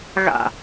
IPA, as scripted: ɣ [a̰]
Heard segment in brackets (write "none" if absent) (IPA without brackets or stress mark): a̰